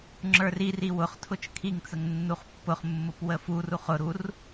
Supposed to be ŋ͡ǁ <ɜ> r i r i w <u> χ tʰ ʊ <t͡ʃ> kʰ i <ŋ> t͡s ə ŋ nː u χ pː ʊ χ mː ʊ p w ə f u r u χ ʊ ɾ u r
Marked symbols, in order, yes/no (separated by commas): no, no, yes, yes